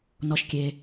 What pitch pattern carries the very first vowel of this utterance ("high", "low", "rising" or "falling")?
high